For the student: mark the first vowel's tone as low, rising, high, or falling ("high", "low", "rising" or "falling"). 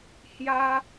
high